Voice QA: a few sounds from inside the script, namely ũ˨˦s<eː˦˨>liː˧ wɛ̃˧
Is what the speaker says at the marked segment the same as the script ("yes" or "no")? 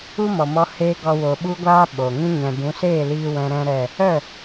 yes